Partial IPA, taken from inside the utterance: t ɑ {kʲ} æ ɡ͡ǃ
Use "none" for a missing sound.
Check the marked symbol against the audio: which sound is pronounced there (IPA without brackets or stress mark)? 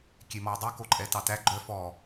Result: t